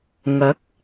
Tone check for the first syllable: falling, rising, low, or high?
rising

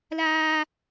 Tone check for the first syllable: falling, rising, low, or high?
high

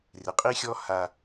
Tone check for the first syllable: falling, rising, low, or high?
low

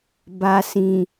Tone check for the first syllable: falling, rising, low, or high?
low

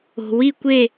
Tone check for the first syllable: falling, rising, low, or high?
low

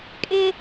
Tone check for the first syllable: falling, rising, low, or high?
high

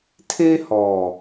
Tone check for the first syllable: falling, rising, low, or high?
high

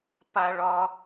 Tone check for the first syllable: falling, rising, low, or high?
high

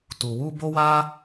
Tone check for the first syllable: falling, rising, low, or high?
low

